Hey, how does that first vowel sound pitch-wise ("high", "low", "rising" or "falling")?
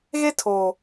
high